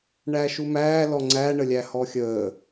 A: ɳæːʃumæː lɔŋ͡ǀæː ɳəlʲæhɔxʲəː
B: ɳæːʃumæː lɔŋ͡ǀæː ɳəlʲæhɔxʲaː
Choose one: A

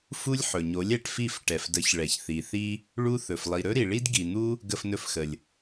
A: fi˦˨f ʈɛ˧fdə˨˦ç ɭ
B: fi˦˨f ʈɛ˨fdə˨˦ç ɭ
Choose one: B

